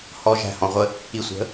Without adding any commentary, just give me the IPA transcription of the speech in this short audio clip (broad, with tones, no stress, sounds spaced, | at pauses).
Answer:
h ɔ˨ ʒ æ̤˨ h ɔ̃˨ ʁʷ ə˦ | i˨ sʷ ə̤˨˦